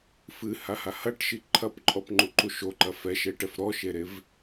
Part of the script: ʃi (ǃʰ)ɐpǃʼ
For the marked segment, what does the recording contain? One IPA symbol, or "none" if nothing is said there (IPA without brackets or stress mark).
ǃʰ